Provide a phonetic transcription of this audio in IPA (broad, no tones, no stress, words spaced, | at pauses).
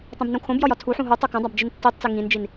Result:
tˤũbnũkʰõbjɒj ɒtʰuħũ ɦu tˤokõdˤab d͡ʒintːitˤt͡si ŋĩnd͡ʒin